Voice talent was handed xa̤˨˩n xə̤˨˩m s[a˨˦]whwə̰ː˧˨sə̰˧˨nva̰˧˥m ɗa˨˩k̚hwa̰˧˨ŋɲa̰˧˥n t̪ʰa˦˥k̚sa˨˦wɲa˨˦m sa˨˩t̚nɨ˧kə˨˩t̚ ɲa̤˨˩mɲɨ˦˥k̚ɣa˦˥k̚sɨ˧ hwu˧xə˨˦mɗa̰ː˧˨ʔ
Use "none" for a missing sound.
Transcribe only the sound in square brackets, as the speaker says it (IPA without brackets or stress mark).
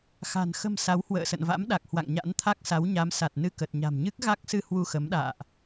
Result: a˨˦